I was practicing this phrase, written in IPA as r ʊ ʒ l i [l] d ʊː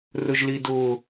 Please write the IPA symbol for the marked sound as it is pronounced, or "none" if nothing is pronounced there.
none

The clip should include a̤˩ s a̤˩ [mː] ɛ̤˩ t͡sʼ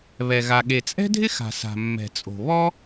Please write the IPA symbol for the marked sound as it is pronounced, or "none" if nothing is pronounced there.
mː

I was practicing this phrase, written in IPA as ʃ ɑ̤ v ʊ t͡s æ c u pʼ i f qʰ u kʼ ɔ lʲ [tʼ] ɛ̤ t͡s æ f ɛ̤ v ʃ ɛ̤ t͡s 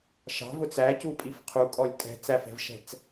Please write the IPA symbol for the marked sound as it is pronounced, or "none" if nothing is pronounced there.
tʼ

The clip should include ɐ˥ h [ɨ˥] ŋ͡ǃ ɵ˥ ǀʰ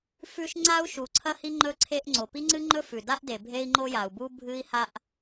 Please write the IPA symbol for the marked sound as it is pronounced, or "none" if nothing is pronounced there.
i˥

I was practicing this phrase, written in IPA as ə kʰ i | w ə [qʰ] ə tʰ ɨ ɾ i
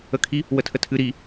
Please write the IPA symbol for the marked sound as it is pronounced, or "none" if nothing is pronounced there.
tʰ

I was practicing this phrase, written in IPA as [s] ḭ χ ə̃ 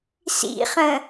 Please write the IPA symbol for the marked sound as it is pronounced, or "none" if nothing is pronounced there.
s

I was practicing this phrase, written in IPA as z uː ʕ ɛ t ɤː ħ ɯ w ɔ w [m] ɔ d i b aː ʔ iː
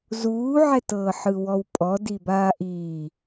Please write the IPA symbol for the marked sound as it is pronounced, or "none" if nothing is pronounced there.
pʼ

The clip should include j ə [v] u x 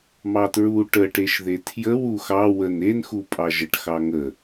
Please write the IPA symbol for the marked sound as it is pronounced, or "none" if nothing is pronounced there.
w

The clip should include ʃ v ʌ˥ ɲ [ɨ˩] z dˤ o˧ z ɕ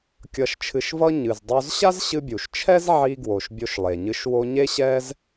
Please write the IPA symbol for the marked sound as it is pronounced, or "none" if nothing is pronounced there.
ɨ˩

